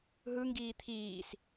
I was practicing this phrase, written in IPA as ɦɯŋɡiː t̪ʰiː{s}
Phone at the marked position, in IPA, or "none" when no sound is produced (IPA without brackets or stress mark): s